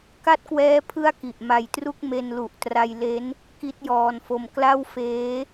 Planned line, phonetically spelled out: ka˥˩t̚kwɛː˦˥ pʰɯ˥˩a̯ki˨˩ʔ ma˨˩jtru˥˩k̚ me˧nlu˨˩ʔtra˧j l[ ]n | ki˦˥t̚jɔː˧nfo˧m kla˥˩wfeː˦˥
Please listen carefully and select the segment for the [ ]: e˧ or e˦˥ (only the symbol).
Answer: e˦˥